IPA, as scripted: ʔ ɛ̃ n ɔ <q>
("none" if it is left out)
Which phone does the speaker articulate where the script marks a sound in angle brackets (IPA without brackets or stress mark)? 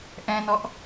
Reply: ʔ